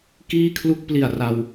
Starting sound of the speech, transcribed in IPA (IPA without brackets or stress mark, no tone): k